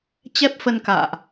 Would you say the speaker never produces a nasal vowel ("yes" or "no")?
yes